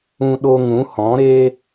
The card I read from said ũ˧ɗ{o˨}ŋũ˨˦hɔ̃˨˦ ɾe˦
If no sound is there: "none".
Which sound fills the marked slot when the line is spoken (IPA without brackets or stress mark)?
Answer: o˧